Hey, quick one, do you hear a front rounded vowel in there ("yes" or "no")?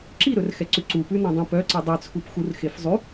yes